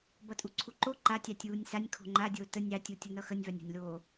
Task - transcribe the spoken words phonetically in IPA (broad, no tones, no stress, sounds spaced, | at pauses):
b ʌ tʼ u ǀʰ u ǃ o ǃ a tʲ ɑ tʲ uː nʲ s a nʲ kʰ o̤ ŋ͡ǃ a dʲ oː t ə nʲ ɑ tʲ u tʲ ʌ n ʌ x ə nʲ v a nʲ o̤ nʲ l oː